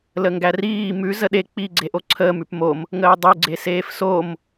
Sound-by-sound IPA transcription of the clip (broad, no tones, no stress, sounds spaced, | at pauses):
l ə ŋ ɡ æ r iː m ʉ z ə ɗ e k͡p i ɡ͡ǀ e ʔ o ǀʰ əː m ʉ p m o m | ŋ əː dˤ ʉ ɡ͡ǀ e s eː f s o m